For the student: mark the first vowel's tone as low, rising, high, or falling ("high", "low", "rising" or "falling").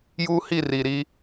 high